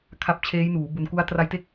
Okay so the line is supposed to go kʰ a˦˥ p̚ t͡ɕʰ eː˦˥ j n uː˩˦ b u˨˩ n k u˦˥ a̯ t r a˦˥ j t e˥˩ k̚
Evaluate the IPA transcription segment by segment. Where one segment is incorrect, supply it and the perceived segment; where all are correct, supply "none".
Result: none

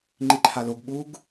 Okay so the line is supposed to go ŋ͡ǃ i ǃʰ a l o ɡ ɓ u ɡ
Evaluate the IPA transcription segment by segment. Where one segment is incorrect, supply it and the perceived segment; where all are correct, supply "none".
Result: none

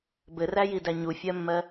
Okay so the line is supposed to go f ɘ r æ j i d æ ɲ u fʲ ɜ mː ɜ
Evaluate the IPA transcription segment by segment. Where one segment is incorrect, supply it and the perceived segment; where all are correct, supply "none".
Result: f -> b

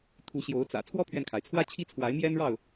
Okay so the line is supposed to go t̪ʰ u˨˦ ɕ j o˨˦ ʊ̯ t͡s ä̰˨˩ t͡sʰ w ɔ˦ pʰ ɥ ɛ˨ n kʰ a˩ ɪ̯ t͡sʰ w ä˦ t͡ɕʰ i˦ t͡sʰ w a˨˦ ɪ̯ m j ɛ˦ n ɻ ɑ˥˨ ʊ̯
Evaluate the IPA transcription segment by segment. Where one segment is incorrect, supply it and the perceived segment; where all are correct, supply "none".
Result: none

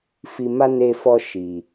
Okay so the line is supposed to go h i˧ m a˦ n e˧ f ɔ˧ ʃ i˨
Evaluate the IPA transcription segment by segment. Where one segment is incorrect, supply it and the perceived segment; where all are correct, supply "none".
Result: h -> f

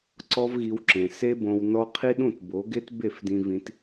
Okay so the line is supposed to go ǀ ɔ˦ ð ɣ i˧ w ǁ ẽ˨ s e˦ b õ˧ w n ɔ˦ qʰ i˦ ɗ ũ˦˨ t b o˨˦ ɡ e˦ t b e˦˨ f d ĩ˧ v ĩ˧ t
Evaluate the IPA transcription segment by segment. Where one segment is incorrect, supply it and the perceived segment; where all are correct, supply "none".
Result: ð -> v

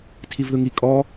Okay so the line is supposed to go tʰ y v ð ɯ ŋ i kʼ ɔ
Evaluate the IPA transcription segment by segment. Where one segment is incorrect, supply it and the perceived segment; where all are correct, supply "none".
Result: y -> i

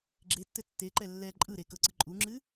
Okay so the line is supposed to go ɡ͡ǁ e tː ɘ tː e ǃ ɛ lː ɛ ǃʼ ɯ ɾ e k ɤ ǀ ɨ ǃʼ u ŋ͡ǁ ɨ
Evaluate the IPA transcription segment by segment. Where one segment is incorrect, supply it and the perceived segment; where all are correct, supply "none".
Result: none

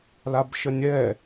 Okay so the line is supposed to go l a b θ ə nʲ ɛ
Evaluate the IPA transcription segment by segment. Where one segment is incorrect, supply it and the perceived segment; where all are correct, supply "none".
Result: θ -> ʃ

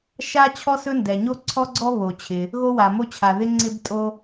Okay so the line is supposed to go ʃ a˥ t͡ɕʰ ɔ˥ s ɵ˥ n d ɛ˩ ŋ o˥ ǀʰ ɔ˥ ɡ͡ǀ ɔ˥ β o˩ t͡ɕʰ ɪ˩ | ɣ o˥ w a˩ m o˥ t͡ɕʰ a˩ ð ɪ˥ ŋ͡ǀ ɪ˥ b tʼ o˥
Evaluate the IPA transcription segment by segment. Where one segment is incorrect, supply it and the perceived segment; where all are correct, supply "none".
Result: ŋ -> ɲ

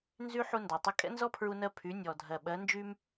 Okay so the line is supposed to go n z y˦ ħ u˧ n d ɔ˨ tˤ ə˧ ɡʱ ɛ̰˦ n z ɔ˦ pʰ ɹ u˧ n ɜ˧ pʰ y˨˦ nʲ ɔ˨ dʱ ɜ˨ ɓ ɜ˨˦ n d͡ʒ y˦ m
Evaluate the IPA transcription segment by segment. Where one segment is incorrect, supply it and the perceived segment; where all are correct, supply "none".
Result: ɡʱ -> kʼ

